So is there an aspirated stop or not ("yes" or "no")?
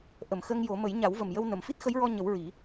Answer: no